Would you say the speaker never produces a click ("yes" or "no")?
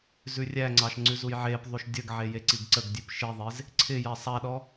no